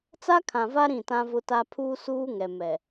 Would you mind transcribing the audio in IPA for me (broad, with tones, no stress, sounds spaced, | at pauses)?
t͡s a˦ kʰ ã˨ v a˦ ɾ ĩ˦˨ t ã˦ v ʊ˦ t a˦ pʰ uː˦ s uː˦ ŋ ɛ˨ m ɛ˨